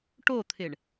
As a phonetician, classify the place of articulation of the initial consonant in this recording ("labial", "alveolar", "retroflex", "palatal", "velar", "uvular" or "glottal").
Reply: retroflex